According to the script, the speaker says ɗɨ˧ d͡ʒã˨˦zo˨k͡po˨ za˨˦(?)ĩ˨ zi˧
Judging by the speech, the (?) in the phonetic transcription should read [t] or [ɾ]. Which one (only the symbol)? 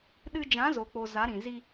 ɾ